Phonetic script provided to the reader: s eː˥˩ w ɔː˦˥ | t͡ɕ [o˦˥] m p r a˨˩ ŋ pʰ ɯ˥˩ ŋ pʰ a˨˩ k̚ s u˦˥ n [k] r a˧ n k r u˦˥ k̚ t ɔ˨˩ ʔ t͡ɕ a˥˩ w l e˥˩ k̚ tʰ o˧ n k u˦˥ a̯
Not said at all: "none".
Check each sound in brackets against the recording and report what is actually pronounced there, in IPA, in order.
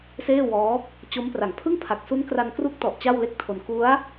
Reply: o˦˥, k

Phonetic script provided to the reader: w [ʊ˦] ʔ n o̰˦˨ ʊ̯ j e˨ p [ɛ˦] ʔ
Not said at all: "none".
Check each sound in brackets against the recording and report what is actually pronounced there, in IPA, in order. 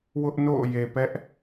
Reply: ʊ˦, ɛ˦

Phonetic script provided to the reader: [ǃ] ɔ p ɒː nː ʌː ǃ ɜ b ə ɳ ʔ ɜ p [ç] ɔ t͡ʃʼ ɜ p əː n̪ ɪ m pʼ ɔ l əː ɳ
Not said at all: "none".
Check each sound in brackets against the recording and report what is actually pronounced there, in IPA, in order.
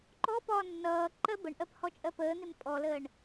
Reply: ǃ, h

